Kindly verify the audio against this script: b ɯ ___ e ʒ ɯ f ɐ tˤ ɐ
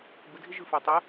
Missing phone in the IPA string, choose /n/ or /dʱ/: dʱ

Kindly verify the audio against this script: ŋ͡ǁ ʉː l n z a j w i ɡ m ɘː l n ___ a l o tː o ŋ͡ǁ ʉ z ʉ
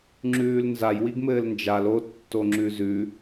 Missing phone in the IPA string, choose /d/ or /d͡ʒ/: d͡ʒ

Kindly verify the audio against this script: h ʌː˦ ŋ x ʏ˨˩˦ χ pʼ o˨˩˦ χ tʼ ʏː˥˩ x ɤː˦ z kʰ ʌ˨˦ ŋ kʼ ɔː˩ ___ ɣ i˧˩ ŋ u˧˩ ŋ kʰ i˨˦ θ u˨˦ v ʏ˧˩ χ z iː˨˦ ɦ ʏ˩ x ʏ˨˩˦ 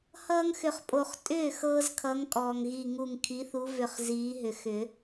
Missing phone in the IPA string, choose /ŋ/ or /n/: ŋ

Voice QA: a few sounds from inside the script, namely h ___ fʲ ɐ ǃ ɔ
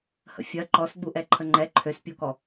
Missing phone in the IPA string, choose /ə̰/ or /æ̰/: ə̰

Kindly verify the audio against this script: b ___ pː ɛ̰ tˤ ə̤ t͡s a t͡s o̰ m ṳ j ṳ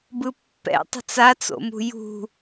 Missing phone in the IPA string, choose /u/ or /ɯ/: ɯ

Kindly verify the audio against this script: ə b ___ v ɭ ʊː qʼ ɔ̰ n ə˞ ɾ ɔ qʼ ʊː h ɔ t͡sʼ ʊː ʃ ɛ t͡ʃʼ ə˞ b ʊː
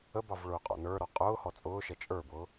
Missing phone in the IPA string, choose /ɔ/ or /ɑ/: ɑ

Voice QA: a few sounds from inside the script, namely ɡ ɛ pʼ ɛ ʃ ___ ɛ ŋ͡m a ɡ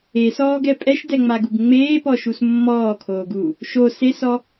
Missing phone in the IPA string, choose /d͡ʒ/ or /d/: d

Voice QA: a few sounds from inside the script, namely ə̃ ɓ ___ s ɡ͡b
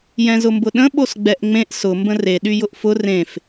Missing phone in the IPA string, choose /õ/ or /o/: o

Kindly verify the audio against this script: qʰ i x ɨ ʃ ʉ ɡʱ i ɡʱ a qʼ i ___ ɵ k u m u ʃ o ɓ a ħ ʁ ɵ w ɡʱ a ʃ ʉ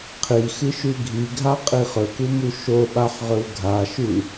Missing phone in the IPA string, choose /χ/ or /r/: χ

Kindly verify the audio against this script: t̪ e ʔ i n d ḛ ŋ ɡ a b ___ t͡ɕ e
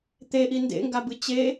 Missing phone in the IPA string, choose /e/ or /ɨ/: ɨ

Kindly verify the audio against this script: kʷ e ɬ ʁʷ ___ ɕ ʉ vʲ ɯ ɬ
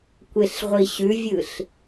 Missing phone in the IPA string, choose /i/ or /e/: i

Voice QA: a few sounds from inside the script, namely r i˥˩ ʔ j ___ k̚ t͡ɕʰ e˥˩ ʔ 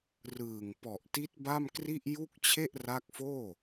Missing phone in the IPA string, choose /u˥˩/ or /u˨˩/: u˥˩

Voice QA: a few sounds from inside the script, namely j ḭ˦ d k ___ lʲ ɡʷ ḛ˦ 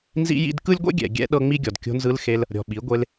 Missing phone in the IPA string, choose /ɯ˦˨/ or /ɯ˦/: ɯ˦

